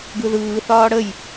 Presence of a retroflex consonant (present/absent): present